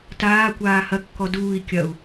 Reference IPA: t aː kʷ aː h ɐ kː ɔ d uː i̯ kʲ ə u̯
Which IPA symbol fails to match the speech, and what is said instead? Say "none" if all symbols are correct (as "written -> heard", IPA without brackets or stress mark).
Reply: ə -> ɐ